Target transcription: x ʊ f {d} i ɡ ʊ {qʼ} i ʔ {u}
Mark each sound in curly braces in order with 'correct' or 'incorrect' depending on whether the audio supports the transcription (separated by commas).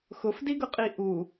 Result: correct, correct, correct